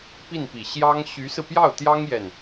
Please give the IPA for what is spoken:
p i˥˩ n p i˨˩ ɕ j ɑ˥ ŋ ɕ y˧˥ s ɹ̩˧ p j ɑ˥˩ ʊ̯ t̪ j ɑ˥ ŋ j ɛ˥˩ n

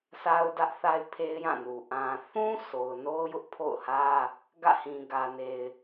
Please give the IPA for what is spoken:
sʰ a˦ ʊ̯ d ä˦ ʔ θ a˦ ɪ̯ pʰ e˦ ɪ̯ j ã˦˨ n u˨ ʔ ã˨ θ ũ˦ s o˨ ʊ̯ n o˦ ʊ̯ j ʊ˦ ʔ pʰ o̰˦˨ ʊ̯ h ä˦ | ɡ ä̰˦˨ h ĩ˨ ɡ ä˨ n e˨ ɪ̯

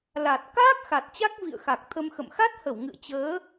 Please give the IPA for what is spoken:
l a˨˩ t̚ k a˦˥ k̚ x a˨˩ t̚ t͡ɕ a˦˥ k̚ v ḭ˧˨ ə̯ x a˨˩ k̚ t̪ʰ ə˧ m x ə̰˧˨ m x a˦˥ t̚ h ə˧˩ w ŋ ɨ̰˧˨ ə̯ t͡ɕ əː˨˦

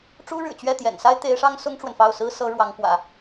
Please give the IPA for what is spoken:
ʈ͡ʂ u˥ ɻ ɻ̩˨˩ t͡ɕ ɥ ɛ˥˩ t̪ j ɛ̰˨˩ n s a˥ ɪ̯ t̪ e˧˥ ɪ̯ ʂ ɑ˥ ŋ s ʊ˥ ŋ ʈ͡ʂ w ə˨ n f ɑ˥˩ ʊ̯ s ɹ̩˥ s ɤ˧˥ ɻ w ɑ˧˥ ŋ k w ä̰˨˩˦

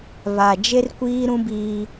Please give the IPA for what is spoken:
β a˨ d͡ʒ e˦ r kʷ iː˦ ɾ ũ˦ b iː˦

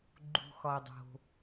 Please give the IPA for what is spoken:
ɡ͡ǃ ṳ˩ x ɒ˩ dˤ o̤˩

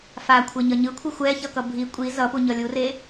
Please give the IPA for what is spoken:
f a kʷʰ e ɲ ʌ ɲ ɯ kʷʰ i xʷ ɛ ç ʌ k ʌ bʱ i kʷʼ i z ʌ p u ɲ ʌ lʲ u r e

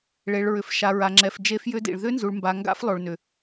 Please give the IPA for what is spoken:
ɭ e˨ ɭ ɹ ʏ˨ f ʃ a˨ ɹ a˨ ŋ͡ǁ ɛ˨ f d͡ʒ e˦˥ f j ʏ˦˥ d ḭ˨ ɭ ð ʏ˦˥ n z u˨ ɭ m b a˨ ŋ ɡ a̰˦˥ f lˠ o˨ ɭ n ʏ˨

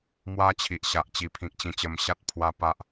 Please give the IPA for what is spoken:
m w a˦ t͡ɕʰ i˨ ʔ ɕ a˨ ʔ t͡ɕ i˨˩ pʰ ĩ˨ k̚ t͡ɕ ĩ˧ t͡ɕ ə˧ m ɕ a˦ t̚ pʰ w a˦ p a˦ ʔ

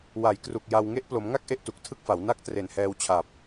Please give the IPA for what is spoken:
w a˩˦ j k r u˨˩ k̚ j a˧ w ŋ e˦˥ ʔ p l o˩˦ m ŋ a˥˩ k̚ ʔ e˥˩ ʔ t u˨˩ k̚ tʰ ɯ˥˩ k̚ f a˩˦ w n a˥˩ k̚ t r e˨˩ n h ɛː˧ w t͡ɕʰ a˨˩ p̚

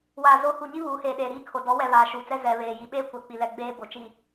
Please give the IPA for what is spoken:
w aː˨ z o˨˦ h u˨ ɲ i˦ β uː˨˦ h eː˨ ɗ eː˨ ɾ iː˦˨ kʰ o˨ d ɔ˨˦ w ɛ˨ β aː˨ ʃ uː˨ t͡s ɛ˦ z ɛ˨ β eː˨ j i˨ ɓ eː˦ kʷ ɛ˨ k͡p i˨ l ɛ˨ ɡ͡b eː˦ b o˨ t͡ʃ i˨

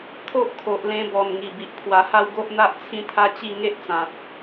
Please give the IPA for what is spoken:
t̪ʰ o˦ ʔ kʰ o˨ ʔ l ẽ˧ b ɔ˨˩ n ŋ i˨˩ b i˨ ʔ pʰ w a˧ h a˥˧ w ɡ o˦ ʔ n̪ a˦ ʔ t͡sʰ ĩ˦ t̪ʰ a˦ t͡ɕ i˥˧ ŋ e˦ ʔ t͡s ã˨ t̚

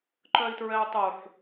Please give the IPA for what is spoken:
ǃ œ i̯ t ɹ ɛ u̯ tˤ u ħ

